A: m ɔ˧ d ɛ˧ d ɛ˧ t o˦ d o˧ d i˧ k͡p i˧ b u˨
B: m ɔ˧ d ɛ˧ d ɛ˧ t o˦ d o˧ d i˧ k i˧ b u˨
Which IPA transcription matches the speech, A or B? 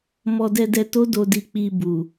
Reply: A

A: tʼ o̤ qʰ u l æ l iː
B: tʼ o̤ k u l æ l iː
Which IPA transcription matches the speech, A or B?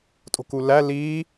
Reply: B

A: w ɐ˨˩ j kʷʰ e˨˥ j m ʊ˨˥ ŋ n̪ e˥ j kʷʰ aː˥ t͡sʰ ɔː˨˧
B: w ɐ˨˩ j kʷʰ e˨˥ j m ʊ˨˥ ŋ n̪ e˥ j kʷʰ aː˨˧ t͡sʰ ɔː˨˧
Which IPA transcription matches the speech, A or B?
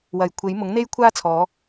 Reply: A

